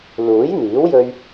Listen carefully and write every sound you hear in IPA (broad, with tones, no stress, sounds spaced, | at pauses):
l uː˨˥ j n̪ iː˨˥ w j ɵ˧ ɥ